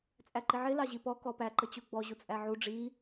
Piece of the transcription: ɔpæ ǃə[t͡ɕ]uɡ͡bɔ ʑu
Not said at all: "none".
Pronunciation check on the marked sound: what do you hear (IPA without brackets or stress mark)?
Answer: t͡ɕ